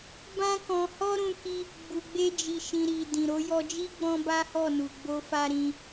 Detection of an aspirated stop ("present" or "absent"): absent